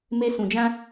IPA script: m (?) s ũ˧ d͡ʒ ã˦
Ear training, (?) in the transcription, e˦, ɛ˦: e˦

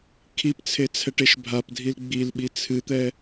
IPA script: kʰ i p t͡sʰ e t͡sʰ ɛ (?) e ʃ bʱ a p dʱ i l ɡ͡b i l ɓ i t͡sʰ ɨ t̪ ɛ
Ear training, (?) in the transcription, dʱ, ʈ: ʈ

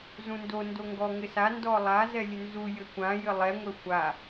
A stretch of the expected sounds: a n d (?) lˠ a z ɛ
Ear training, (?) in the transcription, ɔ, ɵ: ɔ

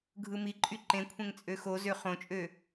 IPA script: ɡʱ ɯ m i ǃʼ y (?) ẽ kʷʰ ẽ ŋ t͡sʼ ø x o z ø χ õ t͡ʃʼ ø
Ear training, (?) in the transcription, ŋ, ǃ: ǃ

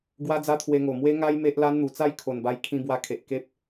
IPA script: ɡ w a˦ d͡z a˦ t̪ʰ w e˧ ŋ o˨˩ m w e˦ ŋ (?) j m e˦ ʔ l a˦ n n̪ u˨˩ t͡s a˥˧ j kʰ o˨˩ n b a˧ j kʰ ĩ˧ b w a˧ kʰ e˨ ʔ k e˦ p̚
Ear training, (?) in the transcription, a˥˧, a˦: a˦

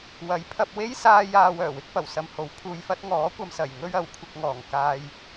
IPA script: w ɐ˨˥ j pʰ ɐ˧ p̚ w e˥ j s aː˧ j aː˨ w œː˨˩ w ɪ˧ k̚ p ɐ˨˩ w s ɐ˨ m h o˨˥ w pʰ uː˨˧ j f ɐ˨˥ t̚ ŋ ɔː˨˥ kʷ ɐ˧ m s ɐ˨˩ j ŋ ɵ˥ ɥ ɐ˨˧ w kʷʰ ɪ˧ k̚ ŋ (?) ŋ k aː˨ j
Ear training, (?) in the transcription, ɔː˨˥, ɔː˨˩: ɔː˨˩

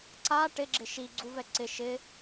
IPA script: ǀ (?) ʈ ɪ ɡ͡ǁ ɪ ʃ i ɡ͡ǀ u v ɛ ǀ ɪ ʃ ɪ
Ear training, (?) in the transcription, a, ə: a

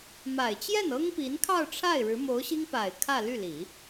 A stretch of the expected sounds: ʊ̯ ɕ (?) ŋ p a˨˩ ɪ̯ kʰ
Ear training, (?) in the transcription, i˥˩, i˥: i˥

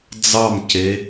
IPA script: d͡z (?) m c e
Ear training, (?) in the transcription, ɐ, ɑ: ɑ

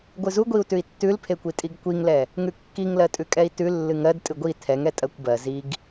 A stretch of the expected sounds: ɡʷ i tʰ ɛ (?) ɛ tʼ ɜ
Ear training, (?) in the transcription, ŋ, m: ŋ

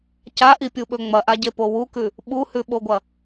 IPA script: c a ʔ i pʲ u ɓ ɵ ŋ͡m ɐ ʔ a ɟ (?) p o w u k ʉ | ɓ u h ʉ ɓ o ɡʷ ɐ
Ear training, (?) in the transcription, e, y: e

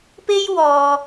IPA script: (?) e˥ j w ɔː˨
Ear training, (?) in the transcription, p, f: p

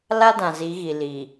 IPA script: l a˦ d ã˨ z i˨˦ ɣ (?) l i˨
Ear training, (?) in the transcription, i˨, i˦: i˨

